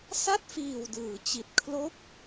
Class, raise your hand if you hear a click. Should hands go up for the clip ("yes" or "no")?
no